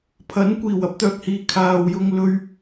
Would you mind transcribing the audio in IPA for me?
pʰɐ˨˥nkʷiː˨˩w ɐ˥p̚t̪œː˨k̚hiː˨ kʰaː˨wjʊ˧ŋ lɵ˧ɥ

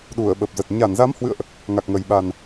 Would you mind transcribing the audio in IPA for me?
ɗu˧˩ə̯ɓə˨˩p̚zə˨˩t̚ ɲa˧˩nza˨˦mhwɨ̰˧˨ə̯ʔ | ŋa˨˩k̚ŋə˨˩j ɓa˨˩n

